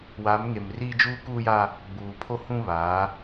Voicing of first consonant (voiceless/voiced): voiced